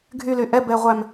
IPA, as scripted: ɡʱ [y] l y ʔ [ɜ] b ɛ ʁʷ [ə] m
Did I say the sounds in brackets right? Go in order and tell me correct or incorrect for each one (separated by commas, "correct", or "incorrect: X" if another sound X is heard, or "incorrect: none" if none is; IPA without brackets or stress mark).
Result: correct, incorrect: ɛ, incorrect: æ